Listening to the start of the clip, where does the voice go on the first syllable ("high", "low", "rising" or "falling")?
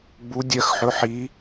rising